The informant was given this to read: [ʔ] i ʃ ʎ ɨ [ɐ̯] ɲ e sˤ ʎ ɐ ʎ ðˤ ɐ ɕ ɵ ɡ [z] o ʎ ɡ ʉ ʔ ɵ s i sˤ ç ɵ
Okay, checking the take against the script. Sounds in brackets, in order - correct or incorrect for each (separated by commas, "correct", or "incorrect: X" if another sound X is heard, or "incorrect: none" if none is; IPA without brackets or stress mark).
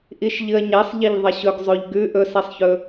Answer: correct, correct, incorrect: zˤ